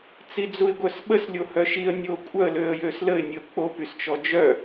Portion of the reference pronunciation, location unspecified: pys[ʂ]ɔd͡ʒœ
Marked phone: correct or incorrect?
incorrect